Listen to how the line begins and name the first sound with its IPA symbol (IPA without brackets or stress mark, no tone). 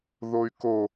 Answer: ð